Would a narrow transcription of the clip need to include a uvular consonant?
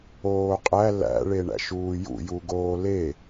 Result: yes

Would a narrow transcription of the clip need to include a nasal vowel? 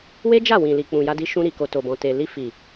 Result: yes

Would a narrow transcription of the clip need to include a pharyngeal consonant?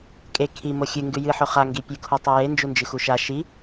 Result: yes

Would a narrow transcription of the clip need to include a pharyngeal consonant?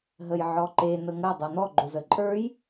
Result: yes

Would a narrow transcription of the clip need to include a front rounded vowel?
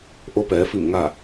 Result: no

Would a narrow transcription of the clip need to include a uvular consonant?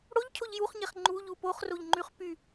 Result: yes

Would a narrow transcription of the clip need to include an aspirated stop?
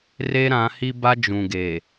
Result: no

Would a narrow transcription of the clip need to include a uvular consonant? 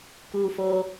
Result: no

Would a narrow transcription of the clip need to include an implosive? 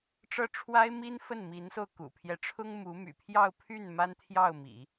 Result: no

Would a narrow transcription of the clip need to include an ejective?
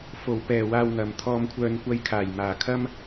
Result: no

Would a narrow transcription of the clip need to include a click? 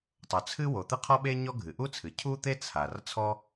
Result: no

